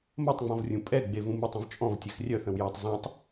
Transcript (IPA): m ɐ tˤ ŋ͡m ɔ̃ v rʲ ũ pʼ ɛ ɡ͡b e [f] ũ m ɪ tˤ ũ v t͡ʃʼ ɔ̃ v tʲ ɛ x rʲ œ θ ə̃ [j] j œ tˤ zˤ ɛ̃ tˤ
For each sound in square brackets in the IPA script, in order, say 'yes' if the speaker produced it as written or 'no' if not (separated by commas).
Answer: no, no